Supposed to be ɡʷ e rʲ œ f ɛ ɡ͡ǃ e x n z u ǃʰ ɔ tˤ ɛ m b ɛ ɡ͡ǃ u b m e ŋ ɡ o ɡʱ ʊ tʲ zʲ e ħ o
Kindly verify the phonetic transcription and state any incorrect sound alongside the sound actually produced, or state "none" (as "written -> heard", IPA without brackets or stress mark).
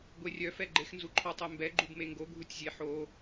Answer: ʊ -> u